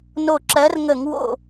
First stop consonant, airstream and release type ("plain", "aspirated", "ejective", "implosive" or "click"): click